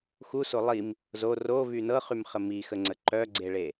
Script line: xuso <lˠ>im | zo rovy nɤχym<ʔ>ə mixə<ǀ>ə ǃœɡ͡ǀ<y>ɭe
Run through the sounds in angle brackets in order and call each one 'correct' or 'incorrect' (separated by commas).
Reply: correct, incorrect, incorrect, incorrect